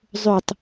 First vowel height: mid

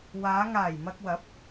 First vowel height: low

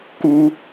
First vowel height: high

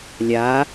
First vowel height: low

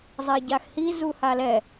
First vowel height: mid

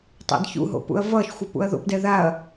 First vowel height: low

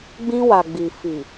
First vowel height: high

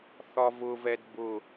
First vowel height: low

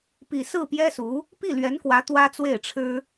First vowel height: high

